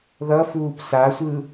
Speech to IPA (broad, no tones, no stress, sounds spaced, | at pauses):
ð ʌ f uː p s a sʷ ɯ